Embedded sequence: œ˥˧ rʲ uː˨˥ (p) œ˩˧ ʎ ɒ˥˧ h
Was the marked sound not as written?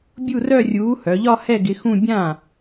yes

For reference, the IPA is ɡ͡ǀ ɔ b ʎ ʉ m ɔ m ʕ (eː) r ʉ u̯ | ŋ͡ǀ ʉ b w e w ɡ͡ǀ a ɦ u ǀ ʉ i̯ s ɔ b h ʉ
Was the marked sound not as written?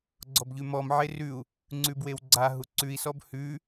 yes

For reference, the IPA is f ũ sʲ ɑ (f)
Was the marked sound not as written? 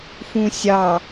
yes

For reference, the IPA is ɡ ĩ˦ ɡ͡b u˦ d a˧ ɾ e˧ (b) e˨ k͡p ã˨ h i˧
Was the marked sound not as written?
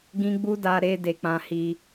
yes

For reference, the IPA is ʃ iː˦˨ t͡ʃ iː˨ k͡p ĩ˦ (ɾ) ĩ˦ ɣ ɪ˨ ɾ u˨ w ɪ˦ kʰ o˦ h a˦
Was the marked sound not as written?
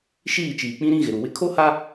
no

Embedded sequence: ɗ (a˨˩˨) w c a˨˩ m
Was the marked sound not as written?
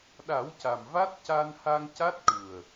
yes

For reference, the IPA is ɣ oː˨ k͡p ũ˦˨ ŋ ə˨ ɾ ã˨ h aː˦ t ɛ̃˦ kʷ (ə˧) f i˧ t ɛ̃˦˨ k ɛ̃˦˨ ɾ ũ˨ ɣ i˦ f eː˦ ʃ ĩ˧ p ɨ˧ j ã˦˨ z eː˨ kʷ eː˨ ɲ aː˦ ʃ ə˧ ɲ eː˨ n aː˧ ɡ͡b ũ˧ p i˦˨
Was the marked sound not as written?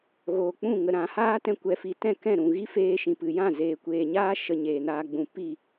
yes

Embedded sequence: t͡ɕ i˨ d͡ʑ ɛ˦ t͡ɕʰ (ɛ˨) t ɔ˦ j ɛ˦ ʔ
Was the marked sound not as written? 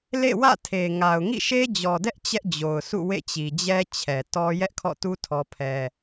no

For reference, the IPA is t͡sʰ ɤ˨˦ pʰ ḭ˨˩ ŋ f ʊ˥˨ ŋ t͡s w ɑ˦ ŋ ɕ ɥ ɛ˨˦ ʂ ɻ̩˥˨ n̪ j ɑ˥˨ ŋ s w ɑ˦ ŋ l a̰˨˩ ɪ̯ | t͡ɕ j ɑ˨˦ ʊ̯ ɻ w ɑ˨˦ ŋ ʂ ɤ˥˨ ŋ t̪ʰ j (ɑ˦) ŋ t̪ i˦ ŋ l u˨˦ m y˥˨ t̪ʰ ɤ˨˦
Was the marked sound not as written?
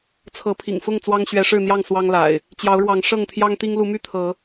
no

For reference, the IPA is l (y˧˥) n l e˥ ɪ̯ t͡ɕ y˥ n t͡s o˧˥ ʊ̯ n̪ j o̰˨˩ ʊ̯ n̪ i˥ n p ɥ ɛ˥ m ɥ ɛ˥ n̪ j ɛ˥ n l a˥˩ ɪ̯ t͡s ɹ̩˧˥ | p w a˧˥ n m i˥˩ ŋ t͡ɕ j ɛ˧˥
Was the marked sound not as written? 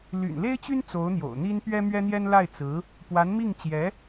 yes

